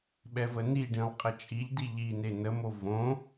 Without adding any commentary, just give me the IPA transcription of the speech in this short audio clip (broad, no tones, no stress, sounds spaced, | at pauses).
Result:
ɓ ɛ v ə n i ɖ ĩ lˠ qʼ ə t͡ʃʼ i ʎ d i ʎ i n e n ə m o v õ